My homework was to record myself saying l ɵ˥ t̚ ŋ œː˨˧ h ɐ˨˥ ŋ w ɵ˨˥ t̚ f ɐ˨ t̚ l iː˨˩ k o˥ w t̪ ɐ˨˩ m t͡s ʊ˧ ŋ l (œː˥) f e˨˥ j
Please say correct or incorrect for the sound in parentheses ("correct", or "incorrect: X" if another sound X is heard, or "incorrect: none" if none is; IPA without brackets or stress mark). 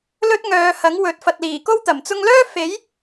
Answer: correct